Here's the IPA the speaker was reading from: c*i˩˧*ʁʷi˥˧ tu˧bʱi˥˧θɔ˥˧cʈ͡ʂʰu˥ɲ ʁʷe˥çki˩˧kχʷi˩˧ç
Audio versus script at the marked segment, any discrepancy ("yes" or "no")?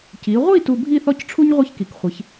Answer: no